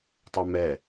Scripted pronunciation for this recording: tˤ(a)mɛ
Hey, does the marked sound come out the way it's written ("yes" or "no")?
no